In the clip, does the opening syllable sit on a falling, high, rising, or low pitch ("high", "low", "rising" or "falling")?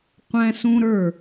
high